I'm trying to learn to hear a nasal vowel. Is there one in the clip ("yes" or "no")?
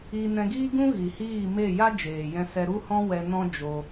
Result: yes